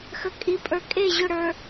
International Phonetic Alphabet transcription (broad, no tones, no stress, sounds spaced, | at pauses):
x ə kʼ i pʼ ə˞ kʼ e ʑ ʊ ɽ ə˞